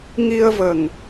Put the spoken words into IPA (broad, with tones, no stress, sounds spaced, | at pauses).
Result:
ŋ i˧ ə̯ v ə˨˩ ŋ